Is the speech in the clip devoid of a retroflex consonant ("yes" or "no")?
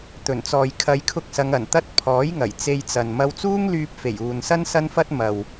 yes